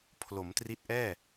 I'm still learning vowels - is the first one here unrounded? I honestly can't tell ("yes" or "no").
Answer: no